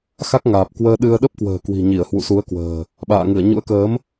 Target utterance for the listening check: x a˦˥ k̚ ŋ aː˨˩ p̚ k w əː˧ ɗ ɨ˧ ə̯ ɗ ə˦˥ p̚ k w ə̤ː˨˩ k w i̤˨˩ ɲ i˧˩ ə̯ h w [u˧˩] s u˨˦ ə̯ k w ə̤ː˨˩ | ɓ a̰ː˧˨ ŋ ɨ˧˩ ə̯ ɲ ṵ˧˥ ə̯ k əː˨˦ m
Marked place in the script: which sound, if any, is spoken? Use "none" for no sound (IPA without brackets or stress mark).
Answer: ṵ˧˨